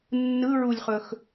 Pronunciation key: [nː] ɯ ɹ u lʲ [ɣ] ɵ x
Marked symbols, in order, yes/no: yes, no

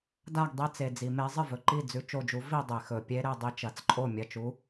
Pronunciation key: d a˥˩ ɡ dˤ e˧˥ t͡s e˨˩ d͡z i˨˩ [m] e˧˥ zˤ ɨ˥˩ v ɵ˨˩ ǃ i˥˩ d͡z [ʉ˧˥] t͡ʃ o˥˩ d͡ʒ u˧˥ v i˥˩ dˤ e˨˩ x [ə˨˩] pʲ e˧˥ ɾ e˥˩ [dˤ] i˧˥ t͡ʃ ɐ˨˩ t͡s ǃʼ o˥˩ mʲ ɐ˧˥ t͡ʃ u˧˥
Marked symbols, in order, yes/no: yes, yes, no, yes

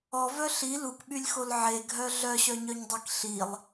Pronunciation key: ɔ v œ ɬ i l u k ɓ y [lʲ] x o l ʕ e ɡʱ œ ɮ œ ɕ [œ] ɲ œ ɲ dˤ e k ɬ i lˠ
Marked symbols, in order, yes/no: yes, yes

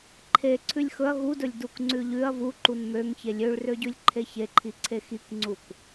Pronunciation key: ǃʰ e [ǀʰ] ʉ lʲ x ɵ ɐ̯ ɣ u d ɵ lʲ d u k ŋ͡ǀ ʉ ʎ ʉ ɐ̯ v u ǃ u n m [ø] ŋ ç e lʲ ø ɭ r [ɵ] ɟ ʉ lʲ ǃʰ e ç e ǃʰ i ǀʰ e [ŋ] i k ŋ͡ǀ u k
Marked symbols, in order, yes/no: yes, yes, no, no

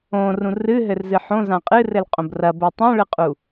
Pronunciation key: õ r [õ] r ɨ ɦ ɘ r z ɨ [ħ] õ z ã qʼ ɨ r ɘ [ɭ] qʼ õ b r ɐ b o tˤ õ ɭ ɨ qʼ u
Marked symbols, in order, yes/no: no, yes, no

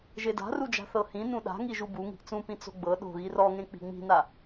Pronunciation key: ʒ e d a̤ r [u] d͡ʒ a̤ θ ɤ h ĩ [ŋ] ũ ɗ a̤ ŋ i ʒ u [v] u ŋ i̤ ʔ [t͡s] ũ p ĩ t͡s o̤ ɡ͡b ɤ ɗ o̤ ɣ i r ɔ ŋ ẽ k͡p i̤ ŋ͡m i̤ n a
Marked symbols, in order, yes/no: yes, no, no, yes

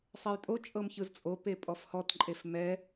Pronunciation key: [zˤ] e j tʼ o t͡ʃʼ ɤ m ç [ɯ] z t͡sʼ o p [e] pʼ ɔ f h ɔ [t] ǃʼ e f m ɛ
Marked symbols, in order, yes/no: no, yes, yes, yes

